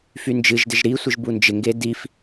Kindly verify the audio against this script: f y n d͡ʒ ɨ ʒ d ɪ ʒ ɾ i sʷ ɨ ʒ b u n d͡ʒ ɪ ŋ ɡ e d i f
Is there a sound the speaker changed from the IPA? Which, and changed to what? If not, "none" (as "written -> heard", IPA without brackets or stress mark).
none